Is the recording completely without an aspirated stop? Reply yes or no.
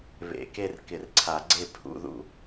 no